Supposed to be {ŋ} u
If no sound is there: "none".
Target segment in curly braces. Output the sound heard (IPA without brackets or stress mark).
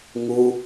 ŋ